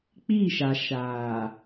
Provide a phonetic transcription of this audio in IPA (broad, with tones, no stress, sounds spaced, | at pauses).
k͡p i˦˨ ʃ a˨ ʃ aː˨